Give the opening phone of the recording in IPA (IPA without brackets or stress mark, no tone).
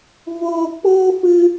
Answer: v